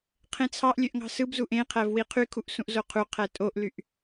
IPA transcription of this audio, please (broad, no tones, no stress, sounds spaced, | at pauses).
qʰ ẽ t͡sʰ ɑ ʔ lʲ ø ʔ ŋ ɑ̤ s ɯ b z u ʔ ẽ qʰ æ v w i qʰ y kʰ u ʔ s ũ ʔ z o qʰ u qʰ æ tʼ o ʔ l y ʔ